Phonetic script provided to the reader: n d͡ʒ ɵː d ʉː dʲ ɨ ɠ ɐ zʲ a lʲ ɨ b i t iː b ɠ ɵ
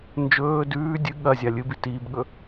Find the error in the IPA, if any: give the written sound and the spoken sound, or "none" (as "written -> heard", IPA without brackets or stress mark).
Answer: none